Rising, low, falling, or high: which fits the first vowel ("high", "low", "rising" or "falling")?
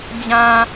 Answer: low